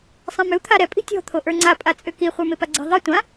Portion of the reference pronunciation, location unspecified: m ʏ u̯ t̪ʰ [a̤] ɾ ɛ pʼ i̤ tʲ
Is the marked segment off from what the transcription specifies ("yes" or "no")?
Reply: yes